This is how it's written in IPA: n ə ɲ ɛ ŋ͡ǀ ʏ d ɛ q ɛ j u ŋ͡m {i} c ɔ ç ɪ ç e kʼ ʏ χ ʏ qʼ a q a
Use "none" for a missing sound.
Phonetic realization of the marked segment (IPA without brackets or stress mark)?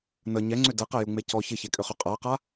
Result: e